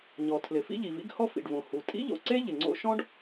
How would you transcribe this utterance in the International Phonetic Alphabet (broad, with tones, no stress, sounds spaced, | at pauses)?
ɲ ɔ˩ tʰ l ɪ˩ f ḭ˥ ʎ i˩ v ḭ˥ ɡ h ɔ˥ f ḭ˩ ɖ v õ˩ h u˩ tʼ ḭ˥ ʎ o̰˩ ǀ e˥ ʎ ɪ˩ ŋ͡ǀ o̰˥ ʃ ɔ̃˥ ɖ